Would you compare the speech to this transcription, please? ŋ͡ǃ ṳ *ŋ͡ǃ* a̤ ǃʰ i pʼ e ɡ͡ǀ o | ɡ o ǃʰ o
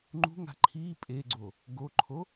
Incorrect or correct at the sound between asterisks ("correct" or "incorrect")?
incorrect